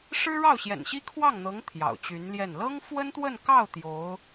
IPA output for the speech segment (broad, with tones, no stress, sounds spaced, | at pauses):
ʂ ɻ̩˥ ɻ ɑ˥˩ ʊ̯ ɕ j ɛ̰˨˩ n ɕ i˥ kʰ w ɑ˥˩ ŋ n̪ ɤ˧˥ ŋ t̪ʰ j ɑ̰˨˩ ʊ̯ t͡ɕ y˧˥ n l j ɛ˥˩ n l ɤ˥ ŋ f w ə˥ n t̪ w ə˥˧ n k ɑ˥˩ ʊ̯ t̪ j o˧˥ ʊ̯